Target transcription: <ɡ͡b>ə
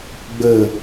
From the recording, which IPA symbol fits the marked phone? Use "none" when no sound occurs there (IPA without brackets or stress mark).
ɡ͡b